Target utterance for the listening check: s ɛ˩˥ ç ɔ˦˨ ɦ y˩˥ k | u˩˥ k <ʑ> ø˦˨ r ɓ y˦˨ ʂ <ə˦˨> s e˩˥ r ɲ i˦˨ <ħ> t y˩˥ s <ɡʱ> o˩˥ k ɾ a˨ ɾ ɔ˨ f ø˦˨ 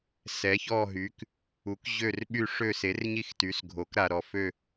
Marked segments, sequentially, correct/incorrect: correct, incorrect: ø˦˨, incorrect: x, correct

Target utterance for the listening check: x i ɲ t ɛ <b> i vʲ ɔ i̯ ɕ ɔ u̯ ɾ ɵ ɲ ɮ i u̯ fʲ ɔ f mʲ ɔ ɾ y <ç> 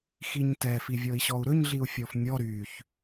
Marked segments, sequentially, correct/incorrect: incorrect: f, correct

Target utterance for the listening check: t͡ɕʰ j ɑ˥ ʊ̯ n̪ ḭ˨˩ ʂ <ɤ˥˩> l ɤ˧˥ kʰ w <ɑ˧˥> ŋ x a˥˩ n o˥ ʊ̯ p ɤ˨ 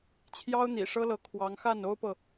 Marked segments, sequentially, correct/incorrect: incorrect: ɤ˥, correct

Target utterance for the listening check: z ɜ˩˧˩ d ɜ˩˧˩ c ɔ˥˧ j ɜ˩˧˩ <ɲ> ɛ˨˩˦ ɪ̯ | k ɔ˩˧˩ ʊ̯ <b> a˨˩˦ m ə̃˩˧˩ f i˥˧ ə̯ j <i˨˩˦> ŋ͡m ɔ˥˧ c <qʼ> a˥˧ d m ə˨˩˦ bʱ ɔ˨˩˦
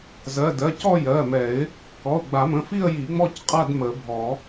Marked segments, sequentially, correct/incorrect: incorrect: m, incorrect: ɡ͡b, correct, correct

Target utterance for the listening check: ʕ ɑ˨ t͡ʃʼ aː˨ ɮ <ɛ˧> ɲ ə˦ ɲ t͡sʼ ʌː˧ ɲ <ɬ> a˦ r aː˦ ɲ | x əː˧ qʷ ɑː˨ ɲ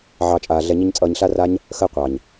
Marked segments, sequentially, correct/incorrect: correct, correct

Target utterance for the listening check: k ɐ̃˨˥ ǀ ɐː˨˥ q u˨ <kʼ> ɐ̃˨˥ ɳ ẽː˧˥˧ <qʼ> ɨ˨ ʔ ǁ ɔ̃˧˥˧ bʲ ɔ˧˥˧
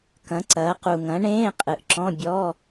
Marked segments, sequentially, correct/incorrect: incorrect: ŋ, correct

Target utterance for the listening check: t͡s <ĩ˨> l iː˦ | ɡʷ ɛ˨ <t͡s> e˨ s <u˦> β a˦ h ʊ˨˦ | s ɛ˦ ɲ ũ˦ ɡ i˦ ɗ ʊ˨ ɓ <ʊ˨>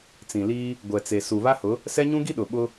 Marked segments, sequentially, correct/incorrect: correct, correct, incorrect: u˨, incorrect: ʊ˦

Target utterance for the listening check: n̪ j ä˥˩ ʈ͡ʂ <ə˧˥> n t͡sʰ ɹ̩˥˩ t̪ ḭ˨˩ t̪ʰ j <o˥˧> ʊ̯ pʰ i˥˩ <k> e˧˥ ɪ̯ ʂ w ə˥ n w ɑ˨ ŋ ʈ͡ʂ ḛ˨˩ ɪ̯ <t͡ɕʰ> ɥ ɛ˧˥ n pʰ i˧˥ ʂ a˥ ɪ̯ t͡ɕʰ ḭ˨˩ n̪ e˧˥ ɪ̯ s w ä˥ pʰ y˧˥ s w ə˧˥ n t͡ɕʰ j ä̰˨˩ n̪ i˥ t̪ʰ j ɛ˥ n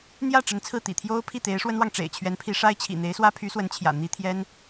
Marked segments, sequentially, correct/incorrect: correct, incorrect: o˥, incorrect: t̪, correct

